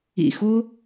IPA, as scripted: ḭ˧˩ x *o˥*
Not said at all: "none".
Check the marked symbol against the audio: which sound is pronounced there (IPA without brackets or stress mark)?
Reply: o˥